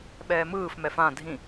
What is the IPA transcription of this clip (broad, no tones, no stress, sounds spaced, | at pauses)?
ɓ ɛː m ɯː f m ɛ f ã dʱ ĩ